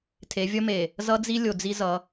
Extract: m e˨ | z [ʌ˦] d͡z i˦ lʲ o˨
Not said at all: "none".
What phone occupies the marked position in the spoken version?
ʌ˦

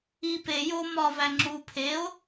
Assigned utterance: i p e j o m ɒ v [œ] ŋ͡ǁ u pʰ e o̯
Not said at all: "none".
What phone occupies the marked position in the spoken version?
æ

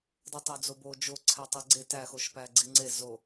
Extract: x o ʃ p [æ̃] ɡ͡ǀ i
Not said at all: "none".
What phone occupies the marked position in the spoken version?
æ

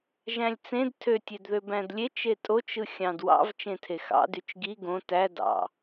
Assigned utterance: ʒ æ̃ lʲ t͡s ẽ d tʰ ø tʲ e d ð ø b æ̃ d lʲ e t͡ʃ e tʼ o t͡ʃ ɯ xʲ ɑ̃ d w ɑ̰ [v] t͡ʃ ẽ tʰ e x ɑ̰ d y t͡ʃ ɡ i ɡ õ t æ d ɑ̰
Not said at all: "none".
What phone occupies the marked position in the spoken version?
v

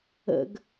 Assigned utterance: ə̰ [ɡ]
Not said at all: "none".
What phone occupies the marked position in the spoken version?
ɡ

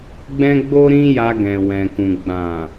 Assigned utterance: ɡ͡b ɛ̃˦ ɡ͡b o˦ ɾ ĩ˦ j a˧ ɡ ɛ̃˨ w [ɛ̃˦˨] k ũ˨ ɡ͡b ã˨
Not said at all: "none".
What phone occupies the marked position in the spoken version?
ɛ̃˨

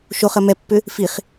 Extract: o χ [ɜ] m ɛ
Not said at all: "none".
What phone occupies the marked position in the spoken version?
ɜ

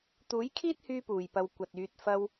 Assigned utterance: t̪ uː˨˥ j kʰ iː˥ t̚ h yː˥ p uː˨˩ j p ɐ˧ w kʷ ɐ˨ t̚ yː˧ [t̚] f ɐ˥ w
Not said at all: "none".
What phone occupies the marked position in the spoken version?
t̚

